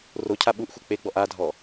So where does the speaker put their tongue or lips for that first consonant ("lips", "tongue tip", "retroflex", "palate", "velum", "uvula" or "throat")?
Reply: tongue tip